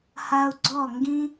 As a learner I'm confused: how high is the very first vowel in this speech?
low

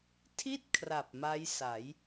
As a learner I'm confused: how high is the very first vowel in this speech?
high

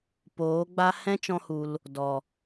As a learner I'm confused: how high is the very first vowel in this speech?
mid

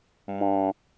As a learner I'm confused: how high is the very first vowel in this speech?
mid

